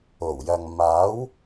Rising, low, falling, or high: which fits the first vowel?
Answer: low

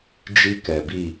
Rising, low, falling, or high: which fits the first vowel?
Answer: high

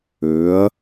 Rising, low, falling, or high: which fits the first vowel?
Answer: rising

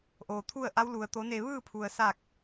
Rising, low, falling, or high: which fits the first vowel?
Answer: low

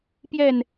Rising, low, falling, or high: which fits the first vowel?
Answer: falling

